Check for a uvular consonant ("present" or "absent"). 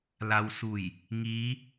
absent